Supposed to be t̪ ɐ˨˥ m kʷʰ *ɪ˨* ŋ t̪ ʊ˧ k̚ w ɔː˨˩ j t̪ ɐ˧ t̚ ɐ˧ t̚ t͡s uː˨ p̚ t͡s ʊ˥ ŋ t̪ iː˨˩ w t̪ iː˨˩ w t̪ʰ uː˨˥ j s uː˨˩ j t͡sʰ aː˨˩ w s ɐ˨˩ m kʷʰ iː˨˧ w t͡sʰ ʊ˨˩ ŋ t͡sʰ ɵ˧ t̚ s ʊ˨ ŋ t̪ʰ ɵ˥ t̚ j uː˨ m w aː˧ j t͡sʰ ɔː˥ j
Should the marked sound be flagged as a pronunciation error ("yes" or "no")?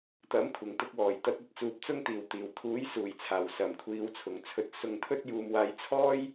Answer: yes